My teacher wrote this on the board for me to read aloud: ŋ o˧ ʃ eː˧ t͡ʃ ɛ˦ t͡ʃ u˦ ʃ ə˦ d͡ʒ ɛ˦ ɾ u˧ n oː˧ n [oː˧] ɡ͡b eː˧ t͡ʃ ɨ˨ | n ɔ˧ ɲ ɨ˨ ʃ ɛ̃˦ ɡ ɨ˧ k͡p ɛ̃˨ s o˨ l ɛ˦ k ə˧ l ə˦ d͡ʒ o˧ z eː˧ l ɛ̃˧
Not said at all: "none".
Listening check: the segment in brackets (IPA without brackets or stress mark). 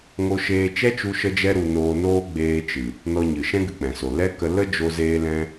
oː˦